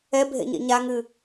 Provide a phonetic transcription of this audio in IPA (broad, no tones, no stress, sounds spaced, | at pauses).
ɛ bʱ ḛ ɲ ḛ ɲ a ŋ ɨ